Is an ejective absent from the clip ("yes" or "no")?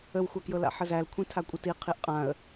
no